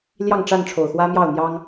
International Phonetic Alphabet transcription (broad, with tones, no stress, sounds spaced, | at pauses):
l j ɑ˥˨ ŋ ʈ͡ʂ a˥˨ n ʈ͡ʂʰ o˨˩ ʊ̯ x w ä˦ m j ɑ˥˨ ʊ̯ n̪ j ɑ˦ ŋ